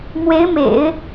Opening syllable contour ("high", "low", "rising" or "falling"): rising